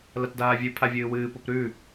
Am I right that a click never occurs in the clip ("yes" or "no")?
yes